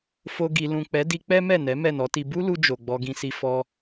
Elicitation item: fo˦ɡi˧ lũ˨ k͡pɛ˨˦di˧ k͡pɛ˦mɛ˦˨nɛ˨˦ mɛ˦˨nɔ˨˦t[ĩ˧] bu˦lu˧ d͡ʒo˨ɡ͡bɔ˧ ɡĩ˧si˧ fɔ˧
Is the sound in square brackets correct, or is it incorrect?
incorrect